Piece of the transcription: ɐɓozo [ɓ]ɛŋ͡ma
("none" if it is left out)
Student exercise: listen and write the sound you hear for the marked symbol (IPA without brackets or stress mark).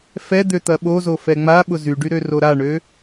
f